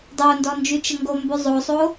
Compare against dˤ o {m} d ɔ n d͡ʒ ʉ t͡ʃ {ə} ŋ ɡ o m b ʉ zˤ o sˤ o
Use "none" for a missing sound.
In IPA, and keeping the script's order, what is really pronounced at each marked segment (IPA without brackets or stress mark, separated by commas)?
n, ə